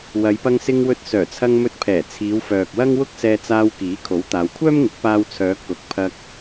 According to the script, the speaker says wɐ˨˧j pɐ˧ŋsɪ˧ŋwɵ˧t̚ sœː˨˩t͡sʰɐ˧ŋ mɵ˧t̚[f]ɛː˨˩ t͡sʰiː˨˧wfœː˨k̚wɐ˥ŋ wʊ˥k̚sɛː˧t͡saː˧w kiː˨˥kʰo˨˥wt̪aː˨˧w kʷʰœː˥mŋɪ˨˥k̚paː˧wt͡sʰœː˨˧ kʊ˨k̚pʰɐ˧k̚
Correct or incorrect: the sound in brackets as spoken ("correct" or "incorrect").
incorrect